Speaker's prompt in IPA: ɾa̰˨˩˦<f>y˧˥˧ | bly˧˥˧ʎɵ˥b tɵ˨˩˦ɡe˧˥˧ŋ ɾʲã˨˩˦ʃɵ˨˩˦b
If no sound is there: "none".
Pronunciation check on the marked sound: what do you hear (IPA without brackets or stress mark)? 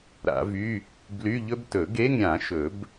v